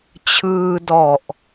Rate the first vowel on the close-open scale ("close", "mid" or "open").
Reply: close